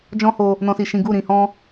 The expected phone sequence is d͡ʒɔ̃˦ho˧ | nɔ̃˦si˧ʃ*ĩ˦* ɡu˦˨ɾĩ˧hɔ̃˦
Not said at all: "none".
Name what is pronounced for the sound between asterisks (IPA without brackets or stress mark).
ĩ˦